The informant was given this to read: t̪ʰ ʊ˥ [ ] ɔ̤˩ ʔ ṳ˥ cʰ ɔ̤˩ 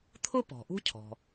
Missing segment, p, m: p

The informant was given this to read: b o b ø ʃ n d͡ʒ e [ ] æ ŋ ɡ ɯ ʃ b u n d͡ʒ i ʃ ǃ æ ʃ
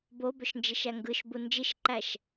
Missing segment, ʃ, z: ʃ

